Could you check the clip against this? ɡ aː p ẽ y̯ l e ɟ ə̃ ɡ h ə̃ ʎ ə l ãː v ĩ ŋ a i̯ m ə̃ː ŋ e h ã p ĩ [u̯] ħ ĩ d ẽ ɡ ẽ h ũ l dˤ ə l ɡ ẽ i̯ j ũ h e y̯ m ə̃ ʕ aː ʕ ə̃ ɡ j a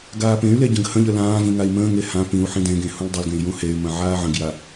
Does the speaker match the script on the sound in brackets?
yes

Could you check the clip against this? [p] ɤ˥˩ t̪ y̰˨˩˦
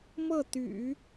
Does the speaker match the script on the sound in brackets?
no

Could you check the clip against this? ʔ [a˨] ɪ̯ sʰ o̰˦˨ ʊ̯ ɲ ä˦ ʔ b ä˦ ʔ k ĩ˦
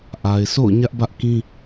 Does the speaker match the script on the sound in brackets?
yes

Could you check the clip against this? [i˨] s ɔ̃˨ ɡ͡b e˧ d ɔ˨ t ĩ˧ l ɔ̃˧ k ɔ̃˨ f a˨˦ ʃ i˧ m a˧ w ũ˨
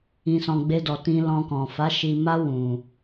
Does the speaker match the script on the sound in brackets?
no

